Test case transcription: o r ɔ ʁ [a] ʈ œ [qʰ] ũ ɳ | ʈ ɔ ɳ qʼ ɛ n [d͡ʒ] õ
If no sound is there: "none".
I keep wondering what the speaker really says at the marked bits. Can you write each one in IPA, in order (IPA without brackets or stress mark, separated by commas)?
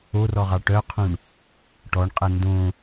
ɑ, qʰ, d